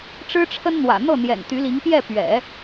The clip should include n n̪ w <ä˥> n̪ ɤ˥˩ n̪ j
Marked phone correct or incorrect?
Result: incorrect